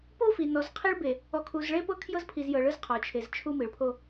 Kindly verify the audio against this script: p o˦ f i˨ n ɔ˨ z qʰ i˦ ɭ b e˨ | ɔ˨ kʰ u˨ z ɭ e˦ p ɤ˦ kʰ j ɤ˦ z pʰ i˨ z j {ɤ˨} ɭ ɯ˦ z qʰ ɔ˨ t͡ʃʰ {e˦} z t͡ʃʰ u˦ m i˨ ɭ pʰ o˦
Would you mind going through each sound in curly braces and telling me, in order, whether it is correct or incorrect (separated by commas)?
correct, incorrect